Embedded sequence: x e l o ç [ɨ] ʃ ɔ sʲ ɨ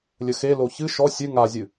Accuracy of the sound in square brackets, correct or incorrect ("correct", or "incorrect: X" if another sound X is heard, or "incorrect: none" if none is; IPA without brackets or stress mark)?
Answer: correct